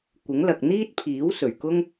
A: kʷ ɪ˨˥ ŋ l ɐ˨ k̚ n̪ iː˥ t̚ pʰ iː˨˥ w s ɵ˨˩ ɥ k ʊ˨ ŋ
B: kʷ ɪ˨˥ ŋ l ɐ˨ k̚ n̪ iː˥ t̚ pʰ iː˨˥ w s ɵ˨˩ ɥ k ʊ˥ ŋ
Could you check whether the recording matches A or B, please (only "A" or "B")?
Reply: B